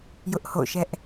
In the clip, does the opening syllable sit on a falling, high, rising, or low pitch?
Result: high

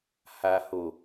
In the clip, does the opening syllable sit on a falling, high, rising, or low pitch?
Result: low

